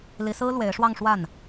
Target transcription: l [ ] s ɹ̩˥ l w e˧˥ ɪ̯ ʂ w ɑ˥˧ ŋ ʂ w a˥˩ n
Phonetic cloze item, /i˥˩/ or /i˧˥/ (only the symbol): i˧˥